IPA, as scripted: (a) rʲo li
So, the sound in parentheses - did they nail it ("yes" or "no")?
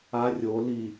yes